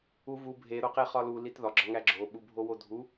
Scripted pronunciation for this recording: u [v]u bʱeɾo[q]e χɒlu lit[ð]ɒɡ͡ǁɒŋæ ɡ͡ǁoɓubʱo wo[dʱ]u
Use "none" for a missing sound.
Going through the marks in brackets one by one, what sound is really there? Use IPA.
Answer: v, q, ð, dʱ

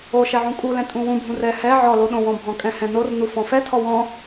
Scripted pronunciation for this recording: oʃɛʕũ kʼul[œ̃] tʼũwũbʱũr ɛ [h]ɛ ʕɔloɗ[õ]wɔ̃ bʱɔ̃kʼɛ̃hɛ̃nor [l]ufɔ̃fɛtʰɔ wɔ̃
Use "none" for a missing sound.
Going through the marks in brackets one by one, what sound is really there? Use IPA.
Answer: ɛ̃, h, õ, n

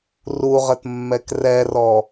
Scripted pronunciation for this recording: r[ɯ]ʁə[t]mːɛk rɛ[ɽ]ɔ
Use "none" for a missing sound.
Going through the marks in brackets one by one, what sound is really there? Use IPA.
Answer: u, t, r

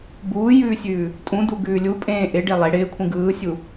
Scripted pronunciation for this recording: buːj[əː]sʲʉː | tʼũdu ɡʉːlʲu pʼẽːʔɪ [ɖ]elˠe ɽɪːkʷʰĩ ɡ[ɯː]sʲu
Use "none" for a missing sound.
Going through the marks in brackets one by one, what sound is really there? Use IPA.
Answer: ʉː, ɖ, ɯː

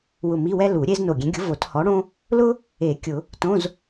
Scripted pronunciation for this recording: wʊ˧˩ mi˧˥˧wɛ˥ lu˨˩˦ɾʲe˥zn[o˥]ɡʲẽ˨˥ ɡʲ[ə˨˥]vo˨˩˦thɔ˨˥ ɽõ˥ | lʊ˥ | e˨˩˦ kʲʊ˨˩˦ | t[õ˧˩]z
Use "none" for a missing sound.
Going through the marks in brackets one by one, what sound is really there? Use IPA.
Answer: o˧˩, ʊ˨˥, õ˧˥˧

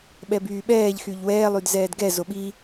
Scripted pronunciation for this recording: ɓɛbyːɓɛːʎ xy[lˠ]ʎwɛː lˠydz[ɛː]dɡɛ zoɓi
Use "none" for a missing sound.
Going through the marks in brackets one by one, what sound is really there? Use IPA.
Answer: none, ɛː

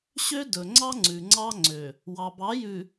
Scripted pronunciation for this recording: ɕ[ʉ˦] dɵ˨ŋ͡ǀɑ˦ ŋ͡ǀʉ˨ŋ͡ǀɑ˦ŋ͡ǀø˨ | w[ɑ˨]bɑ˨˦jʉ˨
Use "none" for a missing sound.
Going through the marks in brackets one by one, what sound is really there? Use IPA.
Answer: ø˦, ɑ˨

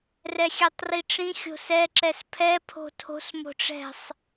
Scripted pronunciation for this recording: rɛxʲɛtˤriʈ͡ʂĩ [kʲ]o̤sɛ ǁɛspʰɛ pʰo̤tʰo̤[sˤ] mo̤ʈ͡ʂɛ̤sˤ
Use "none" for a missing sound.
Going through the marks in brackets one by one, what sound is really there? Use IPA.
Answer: xʲ, s

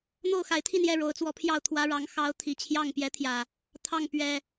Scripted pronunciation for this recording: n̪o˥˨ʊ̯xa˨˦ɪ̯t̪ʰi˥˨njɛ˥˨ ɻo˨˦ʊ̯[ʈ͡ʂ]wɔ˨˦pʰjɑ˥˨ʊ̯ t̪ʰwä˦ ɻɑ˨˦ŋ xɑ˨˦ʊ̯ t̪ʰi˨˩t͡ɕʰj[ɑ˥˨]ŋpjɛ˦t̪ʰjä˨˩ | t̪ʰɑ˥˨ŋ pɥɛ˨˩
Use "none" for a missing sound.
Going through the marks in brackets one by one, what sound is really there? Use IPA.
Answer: t͡s, ɑ˥˨

